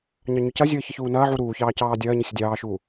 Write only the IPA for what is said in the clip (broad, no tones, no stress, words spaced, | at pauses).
ɲɑɲʏcɐzʲəː çəçuːnɐːʕu ɾuːçɑː cɑːdʲɐːɲə sʲədʲɑːʃuː